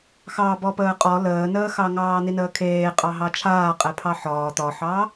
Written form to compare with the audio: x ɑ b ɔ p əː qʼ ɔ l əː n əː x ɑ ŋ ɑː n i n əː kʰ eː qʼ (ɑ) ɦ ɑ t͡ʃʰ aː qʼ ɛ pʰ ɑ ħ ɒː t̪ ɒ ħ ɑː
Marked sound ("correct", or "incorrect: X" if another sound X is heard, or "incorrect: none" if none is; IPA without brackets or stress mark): correct